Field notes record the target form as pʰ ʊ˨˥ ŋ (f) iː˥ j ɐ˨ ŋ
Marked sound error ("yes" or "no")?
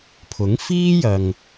no